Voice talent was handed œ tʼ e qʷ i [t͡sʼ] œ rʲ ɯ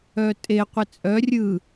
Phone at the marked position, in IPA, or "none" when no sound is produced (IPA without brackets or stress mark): t͡sʼ